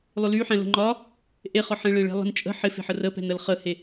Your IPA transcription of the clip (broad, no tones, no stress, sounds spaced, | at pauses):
lˠ ʏ l y ħ ɛ̃ l ə̤ ŋ͡ǃ ɒ | ʔ e χ ɒ ħ ẽ ɭ ẽ ɭ e̤ lˠ ə̤ n t͡ʃʼ ə̤ ħ ɪ f e̤ ħ ə r ə p ɛ̤ n ə l χ ə h e